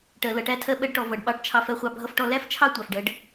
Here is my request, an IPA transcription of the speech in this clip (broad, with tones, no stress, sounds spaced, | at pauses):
ʈ ɜ˧ l ʌ˧ ʈ æ˥ tʰ ɜ˥ ɓ ɜ˥ ɖ ʈ ɔ˧ v ʌ˧ ɖ ɓ ɑ˧ ʈ t͡ʃʰ ɑ˧ f ɜ˧ χʷ ɑ˧ bʱ ʌ˥ f ʈ ɔ˥ l æ˥ f t͡ʃʰ ɑ˥ tʷ ɑ˧ f ɖ ɜ˥ ɖ